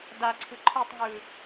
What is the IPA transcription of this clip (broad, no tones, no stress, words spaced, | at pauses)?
daǀʰɯ ǃʰɯtˤŋɯː